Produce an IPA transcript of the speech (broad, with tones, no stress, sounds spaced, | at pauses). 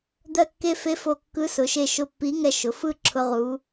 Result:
d̪ ɜ˧˩ kː e˧ f e˧˥ f o˧˩ kː ɯ˧˥ s ʊ˩˧ ʃ e˧˩ ʃ ʊ˧˩ pː i˧˥ ŋ ɛ˧ ʃ ʊ˩˧ f ɯ˥˧ ǁʰ ʊ˧ ʁ u˩˧